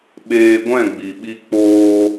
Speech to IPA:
ɓ eː˧ ɡʷ ɛ̃˦˨ ɡ͡b i˨ ɓ i˧ k͡p oː˧

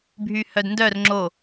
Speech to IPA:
bʱ y h œ d n d œ r ŋ͡ǁ o

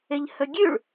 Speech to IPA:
ɪ ʎ h ɵ ɡʲ ʉ ɭ

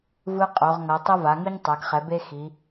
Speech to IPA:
v ɯ˦ qʼ o˩˧ ʁ ŋ ʌ˩˧ tˤ ʌ˦ v a˩˧ ŋ ɯ˦ ɲ tˤ a˩˧ ɡ χ ɛ˩˧ b e˦ x i˩˧

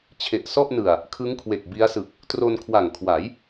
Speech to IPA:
t͡ɕʰ e˨˩ ʔ s ɔ˥˩ ʔ n ɯ˨˩ a̯ | kʰ ɯ˦˥ ŋ kʰ w e˨˩ k̚ b i˦˥ a̯ s ɯ˨˩ k̚ | t r o˧ n kʰ w a˨˩ ŋ kʰ w a˩˦ j

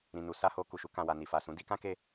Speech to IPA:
ɾ ĩ˨ n u˨˦ s a˦ h o˧ k u˨ ʃ u˧ k ã˨ w a˨ n i˨ f a˨ s ũ˨˦ d i˧ k ã˦ k e˧

